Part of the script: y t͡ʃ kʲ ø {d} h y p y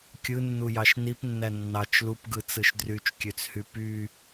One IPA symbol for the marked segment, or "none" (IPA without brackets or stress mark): t͡s